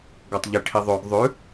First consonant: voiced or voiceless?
voiced